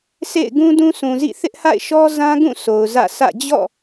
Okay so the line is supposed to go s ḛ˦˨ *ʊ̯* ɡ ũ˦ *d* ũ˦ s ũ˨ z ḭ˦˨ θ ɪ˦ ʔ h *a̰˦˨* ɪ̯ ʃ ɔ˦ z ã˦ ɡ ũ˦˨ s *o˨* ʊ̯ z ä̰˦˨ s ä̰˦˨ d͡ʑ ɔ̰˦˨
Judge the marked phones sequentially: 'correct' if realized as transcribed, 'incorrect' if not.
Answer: incorrect: ɪ̯, correct, correct, correct

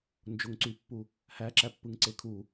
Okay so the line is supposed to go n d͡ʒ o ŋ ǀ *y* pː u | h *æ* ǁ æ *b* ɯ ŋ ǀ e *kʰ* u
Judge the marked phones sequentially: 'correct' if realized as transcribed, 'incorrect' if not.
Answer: correct, correct, incorrect: pː, correct

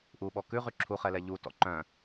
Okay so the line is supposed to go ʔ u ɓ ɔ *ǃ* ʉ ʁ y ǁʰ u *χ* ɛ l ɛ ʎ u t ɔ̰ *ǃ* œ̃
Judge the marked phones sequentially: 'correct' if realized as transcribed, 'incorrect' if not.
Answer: incorrect: k, correct, correct

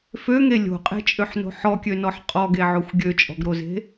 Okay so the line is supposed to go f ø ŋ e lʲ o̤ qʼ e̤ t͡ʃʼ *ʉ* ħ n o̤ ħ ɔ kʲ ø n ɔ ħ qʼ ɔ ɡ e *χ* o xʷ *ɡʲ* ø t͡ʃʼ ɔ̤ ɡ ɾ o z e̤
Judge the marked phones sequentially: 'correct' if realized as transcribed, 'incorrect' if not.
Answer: incorrect: ø, incorrect: ʕ, correct

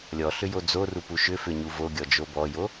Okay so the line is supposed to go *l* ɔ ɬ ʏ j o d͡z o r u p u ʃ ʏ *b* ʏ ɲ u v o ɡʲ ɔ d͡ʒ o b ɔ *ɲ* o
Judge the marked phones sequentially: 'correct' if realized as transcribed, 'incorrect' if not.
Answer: incorrect: lʲ, incorrect: f, incorrect: j

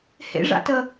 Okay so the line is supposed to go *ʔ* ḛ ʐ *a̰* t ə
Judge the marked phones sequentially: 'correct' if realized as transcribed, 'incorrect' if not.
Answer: incorrect: h, correct

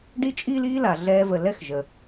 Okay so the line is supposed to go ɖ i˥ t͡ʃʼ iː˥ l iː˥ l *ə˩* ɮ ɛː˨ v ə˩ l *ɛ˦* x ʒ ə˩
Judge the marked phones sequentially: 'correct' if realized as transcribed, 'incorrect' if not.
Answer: incorrect: a˩, correct

